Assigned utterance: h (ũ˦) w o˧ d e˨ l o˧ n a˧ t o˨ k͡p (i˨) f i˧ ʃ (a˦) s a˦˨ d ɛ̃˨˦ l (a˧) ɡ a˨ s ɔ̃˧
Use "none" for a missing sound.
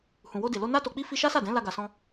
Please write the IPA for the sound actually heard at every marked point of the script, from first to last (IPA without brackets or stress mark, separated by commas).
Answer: ũ˨, i˧, a˦, a˧